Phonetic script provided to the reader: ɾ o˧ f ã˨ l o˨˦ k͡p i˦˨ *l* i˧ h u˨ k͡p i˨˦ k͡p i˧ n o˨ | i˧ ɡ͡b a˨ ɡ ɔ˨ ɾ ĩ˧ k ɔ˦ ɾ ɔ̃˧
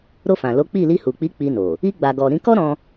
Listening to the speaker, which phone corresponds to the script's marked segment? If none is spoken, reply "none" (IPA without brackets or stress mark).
l